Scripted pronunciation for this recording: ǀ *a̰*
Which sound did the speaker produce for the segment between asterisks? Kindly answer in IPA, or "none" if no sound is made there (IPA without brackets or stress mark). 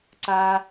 a